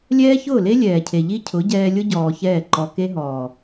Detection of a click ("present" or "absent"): present